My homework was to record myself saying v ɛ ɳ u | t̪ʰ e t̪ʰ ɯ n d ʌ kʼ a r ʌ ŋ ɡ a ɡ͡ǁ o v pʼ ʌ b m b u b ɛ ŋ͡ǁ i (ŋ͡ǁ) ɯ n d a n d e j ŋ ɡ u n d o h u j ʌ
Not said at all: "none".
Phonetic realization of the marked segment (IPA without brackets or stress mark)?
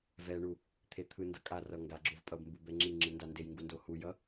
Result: ŋ͡ǁ